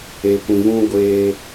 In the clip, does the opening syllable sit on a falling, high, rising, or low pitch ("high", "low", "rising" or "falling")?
low